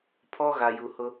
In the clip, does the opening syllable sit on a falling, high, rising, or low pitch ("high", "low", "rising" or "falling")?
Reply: high